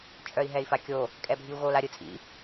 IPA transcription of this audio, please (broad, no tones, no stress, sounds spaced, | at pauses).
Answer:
t͡ʃʼ œ i̯ ɦ ɛ i̯ f a kʲ o | kʼ ɛ bʱ i u̯ ɣ o l a ɾʲ ɯ t͡sʼ ḭ